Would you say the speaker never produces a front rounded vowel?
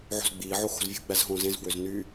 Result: no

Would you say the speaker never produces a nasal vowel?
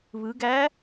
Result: yes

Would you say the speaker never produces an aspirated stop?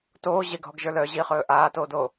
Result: yes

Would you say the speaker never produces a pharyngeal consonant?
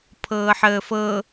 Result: no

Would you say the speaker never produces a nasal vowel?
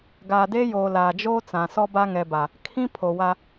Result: no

